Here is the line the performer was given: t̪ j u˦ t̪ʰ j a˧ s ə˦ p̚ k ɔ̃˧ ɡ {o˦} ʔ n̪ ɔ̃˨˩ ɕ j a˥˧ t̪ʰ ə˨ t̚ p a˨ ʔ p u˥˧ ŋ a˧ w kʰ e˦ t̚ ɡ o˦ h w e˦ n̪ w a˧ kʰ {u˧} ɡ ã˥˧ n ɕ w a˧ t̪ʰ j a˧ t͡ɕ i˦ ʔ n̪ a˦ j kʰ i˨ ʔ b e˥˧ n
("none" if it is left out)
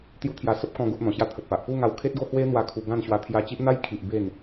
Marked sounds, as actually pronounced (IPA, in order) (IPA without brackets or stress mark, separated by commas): o˦, u˧